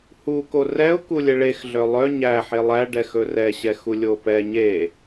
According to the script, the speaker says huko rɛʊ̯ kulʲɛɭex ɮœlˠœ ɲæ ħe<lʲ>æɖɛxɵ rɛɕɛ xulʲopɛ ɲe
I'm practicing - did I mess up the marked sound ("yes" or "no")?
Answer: yes